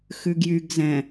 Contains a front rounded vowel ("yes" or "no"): yes